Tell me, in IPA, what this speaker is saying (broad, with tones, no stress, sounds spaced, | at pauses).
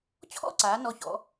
t͡ɕʰ ɔ̰˥˧ ǀ aː˩˧ n ɔ˧˩ ç ɔ̰˩˧